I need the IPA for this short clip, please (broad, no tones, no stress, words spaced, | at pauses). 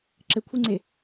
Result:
ǁɘkʷʰeŋ͡ǀe